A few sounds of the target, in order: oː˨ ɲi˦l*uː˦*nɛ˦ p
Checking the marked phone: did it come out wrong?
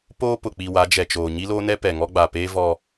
yes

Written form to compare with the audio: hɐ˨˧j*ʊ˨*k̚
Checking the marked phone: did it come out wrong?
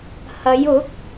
yes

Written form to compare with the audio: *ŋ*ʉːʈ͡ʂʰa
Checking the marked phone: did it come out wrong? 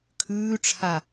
yes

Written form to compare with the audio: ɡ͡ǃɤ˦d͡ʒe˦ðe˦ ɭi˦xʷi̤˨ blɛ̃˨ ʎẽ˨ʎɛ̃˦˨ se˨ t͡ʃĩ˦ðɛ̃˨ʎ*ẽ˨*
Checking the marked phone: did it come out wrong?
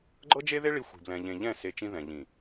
yes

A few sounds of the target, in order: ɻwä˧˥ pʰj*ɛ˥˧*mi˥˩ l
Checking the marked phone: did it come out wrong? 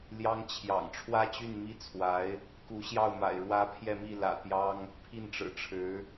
no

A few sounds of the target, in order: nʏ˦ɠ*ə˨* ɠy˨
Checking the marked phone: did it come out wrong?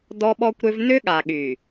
yes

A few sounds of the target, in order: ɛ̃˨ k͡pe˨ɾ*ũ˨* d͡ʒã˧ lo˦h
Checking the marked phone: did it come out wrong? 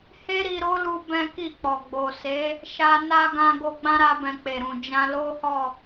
no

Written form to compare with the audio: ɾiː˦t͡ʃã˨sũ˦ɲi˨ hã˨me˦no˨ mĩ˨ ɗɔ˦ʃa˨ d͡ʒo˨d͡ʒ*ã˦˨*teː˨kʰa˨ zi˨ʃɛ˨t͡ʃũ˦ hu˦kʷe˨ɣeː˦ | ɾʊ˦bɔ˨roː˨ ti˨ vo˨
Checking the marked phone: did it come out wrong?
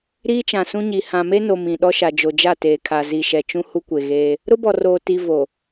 yes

